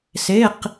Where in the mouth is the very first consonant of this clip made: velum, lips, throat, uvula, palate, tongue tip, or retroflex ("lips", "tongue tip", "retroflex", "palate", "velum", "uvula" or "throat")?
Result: tongue tip